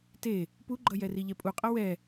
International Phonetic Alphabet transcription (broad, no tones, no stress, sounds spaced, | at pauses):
t e | p u ɡ͡ǃ ʌ j ɛ r i ʎ ɛ pʼ u qʼ ʌ w ɛ